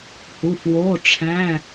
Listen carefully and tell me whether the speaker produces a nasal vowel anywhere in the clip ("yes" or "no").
yes